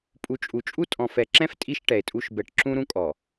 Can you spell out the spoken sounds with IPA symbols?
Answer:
pʼ u˨ t͡ʃʼ u˨ t͡ʃʼ u˦ tʼ ɔ̃˨ f ɛ˨ ǁ ɛ̃˦ f tʼ i˦ ʃ ʈ ɛ˨ e̯ tʼ u˦ ʃ b ɛ˨ ʈ ǁ ũ˦ ɾ ũ˦ kʼ ɔ˨

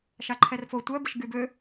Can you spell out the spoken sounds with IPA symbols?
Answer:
ʃ a ǃʰ ɛ r f o tʷ œ b ə ʃ ɡ y b ø

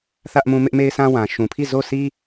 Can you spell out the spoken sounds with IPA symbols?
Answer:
θ ä˦ ʔ m ũ˦ m ɪ˦ ʔ m e˦ ɪ̯ s ã˦ w ã˨ ʃ ũ˨ pʰ i˦˨ z o˦˨ sʰ i˦

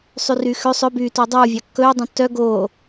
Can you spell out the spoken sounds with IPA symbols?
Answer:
sˤ y r yː x ø sˤ ɵ b yː t oː dˤ uː vʲ ɑ kː ɵː dˤ õ tː œ ɡ oː

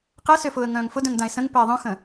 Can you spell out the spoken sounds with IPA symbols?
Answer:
q ɛ s ø f ʊː ə̯ ŋ œ̃ː ŋ f ʊ d œ̃ ŋ d ã ɪ̯ s ə̃ ŋ p ɛ ɪ̯ ðˤ œ̃ x ə̃

